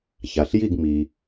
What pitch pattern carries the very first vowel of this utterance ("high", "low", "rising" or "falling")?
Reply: low